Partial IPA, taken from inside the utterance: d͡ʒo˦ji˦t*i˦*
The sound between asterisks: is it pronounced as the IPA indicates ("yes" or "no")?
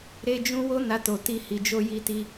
yes